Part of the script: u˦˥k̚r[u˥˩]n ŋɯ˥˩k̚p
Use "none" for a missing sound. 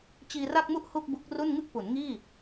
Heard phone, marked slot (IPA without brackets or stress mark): u˥˩